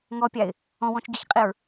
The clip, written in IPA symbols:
ŋɔpʲaɪ̯ | ɔ̃wɔ̃t͡ʃɟɤçqʼiɹ

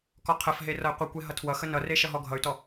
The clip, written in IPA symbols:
kɔqʰəfɦe rʌi̯qʷekʷe ɦʌtʰwʌxə nʌre ʃʌɦɔɡʱʌy̯tɔ

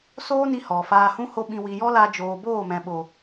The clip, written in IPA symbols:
soː˦ni˧ hɔ˨faː˧hũ˦ ho˧ ɓĩ˨wi˨jɔ˦ la˧d͡ʒoː˨ boː˦˨mɛ̃˨ɓo˨

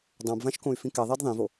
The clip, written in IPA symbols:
dˤãbvãʃkõy̯fĩ kɛðˤɛd ðˤĩvo

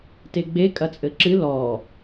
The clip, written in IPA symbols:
teɡ͡be kʼɐt͡sʼɘǁɨ lɔ

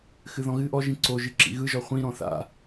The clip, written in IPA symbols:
xɨðɔ̃ɣɨ ʔɔʒĩ ǀoʒɨ ǁḭɣɯʒɔ χʷĩɾɔ̃ θa̰

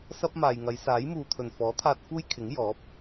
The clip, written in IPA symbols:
sɐ˥p̚maː˨jŋɐ˨˧j saː˨˥jmuː˨t̪ʰɵ˨˩n fɔː˨˥t̪ʰaː˧t̚ fuː˥jkʰɪ˨˥ŋ jɔː˨˥p̚

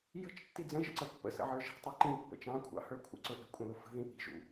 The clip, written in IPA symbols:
jə̤t͡ʃtːi d͡zə̃ʒə̰ǀə pːə̰sə̰ʕə˞ ʒi̤tˤə˞ ǃĩpːə̰ t͡ʃɑ̃kʷʰɑ̰hə˞ kʷʰə̰ǀʊ ʔə̤kʷʼə̃lʊ fə̤ðĩ ʔi̤ʒṵ

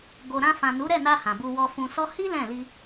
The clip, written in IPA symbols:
ɡo˨ɾã˧ fã˨nu˨˦ɾɛ˦˨na˧ hã˨bu˧wɔ˧fũ˧ sɔ˧hi˦ lɛ̃˦˨li˧

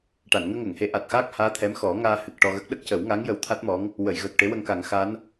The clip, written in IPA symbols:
ʈa˨˩˨nŋəː˧ŋəː˨˩˨ŋhe˨˩˦ ʔa˨˩t̚xaː˦˥k̚haː˧˥ t̪ʰɛ˧˥mxɔ˨˩˦ ŋaː˧hɨ˨˩k̚ ʈɔ˧ɣə˦˥k̚ ɗə˦˥k̚cə˨˩˦wŋa˧˥ŋ jə˧˥wt̪ʰa˦˥t̚mɔ˧˥ŋ | wə˨˩˨jɣəː˨˩k̚ ʈe˧˥wə˧ŋka˨˩˦ŋ xa˧˥n

